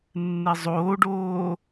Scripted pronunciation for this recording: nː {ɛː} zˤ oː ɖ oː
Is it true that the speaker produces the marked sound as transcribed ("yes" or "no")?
no